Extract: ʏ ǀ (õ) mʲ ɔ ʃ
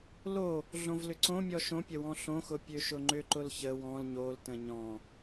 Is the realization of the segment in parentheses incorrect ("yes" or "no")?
no